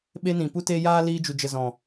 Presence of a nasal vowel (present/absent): present